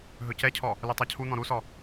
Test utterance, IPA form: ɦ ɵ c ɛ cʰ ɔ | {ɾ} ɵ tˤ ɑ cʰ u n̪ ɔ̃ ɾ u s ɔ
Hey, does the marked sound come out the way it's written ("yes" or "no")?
no